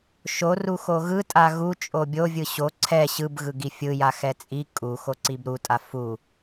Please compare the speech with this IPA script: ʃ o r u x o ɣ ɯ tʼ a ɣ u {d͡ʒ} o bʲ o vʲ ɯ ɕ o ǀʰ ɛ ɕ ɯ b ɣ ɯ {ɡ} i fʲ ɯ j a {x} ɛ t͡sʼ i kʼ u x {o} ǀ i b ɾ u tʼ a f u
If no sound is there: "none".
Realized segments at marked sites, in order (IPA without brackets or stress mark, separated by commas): t͡ʃʼ, ɡ, x, o